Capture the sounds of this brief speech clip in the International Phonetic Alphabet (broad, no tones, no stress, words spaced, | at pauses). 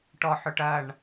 ʈɔħʊʈɐɳ